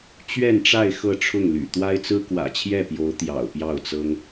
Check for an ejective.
absent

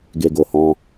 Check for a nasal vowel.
present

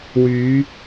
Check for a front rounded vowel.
present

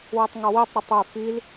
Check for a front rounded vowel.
present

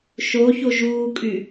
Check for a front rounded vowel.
present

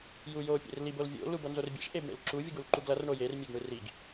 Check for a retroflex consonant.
present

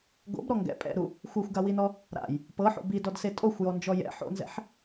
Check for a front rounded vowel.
absent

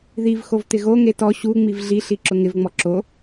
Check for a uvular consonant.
absent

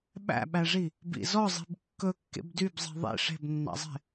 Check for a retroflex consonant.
present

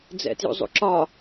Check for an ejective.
absent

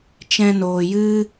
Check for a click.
absent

